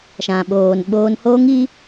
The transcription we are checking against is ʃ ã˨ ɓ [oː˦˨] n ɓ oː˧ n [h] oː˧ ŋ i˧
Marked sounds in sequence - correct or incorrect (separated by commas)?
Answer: incorrect, correct